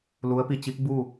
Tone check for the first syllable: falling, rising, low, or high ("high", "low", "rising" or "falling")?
rising